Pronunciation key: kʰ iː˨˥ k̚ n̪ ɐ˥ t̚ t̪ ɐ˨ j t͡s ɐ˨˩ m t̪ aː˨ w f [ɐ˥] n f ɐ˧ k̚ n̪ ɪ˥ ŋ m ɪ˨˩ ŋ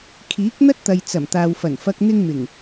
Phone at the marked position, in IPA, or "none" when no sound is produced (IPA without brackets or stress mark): ɐ˨˩